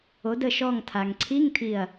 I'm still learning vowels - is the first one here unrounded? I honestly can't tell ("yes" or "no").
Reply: no